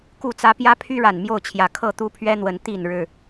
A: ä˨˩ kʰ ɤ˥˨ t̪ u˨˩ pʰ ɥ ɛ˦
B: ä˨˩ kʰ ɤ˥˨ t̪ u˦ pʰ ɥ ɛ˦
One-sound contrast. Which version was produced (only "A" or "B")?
B